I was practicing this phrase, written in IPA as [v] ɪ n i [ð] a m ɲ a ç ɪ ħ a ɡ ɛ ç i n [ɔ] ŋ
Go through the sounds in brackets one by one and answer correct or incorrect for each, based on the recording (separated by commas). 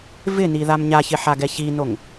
correct, correct, incorrect